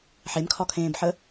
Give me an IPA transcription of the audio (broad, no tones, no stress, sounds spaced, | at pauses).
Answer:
ħ e m kʰ ɒ kʰ ẽː b ħ ə